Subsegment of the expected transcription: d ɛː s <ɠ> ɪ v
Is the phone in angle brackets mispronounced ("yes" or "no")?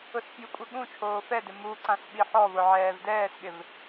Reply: no